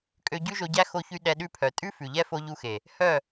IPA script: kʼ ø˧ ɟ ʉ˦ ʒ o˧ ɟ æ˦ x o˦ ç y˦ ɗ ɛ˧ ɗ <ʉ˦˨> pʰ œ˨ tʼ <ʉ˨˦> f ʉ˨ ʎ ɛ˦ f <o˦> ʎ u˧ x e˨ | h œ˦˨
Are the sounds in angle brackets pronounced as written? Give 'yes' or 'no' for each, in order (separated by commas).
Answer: yes, no, no